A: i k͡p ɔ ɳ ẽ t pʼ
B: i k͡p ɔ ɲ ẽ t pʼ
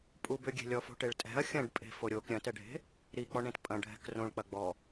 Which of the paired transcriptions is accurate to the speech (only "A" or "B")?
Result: A